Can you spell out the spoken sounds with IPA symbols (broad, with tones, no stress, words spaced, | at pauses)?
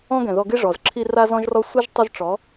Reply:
ɔ̃˦ɡɛ̃˨ ðɔ˧ɡɪ˦ʐɔ˨z ǁʰi˧ ra˦zɔ̃˦ʒrɔ˦ sʷɪ˦ʒ tˤɪ˦zʈ͡ʂɔ˨˦